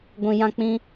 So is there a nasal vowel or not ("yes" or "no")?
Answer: yes